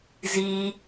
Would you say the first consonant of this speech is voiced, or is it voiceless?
voiced